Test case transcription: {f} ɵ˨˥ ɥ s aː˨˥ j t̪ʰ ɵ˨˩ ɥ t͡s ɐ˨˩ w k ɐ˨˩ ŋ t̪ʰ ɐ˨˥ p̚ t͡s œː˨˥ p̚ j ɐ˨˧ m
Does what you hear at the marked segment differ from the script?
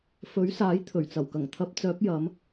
no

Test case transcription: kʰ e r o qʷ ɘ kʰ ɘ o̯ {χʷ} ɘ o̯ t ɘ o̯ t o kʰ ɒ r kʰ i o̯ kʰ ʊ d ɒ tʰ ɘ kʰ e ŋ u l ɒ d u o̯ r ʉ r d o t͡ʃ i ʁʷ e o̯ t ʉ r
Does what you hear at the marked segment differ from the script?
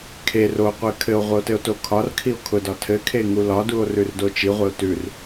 yes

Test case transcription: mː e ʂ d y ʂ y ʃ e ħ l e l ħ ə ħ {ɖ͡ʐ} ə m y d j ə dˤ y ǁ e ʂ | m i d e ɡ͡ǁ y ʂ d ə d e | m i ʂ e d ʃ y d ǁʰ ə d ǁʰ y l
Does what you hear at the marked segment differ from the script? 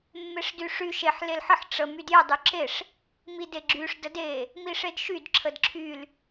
yes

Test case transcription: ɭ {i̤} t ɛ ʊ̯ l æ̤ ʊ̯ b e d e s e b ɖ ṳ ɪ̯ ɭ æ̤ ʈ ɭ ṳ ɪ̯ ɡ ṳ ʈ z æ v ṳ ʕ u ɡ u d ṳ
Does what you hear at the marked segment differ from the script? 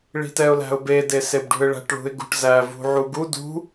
no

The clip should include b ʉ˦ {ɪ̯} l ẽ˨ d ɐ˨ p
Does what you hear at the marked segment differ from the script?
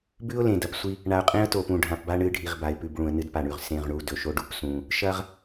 yes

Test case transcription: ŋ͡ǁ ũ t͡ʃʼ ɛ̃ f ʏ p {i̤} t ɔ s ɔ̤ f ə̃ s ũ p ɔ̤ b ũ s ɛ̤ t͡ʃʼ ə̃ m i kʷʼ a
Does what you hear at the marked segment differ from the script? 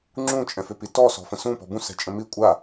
yes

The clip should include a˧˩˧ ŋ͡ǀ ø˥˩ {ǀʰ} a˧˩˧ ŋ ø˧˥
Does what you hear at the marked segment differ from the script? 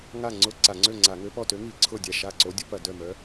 yes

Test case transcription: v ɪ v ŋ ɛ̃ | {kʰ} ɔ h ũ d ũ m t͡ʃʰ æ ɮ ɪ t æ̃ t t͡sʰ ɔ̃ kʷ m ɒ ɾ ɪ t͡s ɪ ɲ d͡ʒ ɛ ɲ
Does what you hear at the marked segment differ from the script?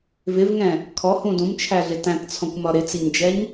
no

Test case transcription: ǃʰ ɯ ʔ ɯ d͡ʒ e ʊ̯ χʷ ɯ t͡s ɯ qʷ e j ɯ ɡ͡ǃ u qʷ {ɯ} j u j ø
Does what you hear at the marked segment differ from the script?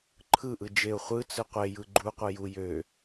no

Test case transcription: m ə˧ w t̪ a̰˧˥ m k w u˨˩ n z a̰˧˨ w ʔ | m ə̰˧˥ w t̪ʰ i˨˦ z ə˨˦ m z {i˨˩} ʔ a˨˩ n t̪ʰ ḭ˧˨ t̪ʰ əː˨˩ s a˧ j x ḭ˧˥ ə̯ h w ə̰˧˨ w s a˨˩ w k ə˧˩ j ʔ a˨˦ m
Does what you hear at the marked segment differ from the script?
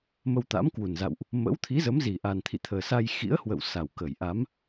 no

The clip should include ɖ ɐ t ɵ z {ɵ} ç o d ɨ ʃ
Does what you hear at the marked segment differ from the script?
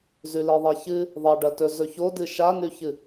no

